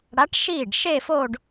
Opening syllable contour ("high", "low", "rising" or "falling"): rising